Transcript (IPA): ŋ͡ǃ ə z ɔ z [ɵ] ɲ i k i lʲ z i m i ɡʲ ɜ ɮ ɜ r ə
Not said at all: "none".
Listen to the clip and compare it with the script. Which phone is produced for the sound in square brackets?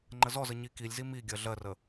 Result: ə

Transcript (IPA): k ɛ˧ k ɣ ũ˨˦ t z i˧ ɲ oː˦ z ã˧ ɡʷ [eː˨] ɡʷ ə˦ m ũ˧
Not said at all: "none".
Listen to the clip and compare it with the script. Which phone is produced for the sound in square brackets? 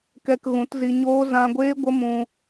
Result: eː˦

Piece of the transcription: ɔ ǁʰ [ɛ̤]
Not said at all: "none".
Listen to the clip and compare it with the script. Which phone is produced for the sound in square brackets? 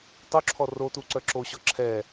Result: ɛ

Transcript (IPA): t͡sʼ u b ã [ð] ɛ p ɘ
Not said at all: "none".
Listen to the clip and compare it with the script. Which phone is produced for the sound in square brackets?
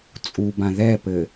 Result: ð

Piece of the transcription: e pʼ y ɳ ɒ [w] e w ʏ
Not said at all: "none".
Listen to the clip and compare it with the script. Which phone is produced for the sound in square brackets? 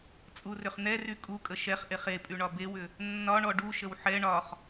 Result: b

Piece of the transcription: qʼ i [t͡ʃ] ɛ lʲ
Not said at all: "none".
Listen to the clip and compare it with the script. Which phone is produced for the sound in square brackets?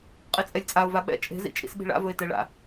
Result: t͡sʼ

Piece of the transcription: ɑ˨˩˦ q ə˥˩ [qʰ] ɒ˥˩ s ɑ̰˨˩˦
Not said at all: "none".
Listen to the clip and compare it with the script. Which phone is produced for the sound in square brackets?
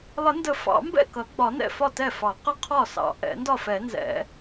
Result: qʰ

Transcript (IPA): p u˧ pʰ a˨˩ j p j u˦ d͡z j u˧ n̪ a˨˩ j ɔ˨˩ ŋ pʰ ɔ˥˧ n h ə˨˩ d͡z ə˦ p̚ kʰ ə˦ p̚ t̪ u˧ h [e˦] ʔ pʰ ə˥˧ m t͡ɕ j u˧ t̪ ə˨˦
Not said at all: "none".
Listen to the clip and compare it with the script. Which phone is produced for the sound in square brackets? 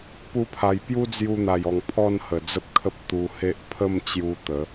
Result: e˦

